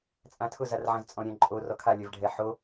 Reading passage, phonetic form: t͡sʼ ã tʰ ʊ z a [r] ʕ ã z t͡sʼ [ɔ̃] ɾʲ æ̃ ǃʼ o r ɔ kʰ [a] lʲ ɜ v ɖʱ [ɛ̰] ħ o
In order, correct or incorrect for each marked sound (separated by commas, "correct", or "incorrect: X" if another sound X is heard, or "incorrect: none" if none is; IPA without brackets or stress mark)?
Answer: correct, correct, correct, incorrect: ɛ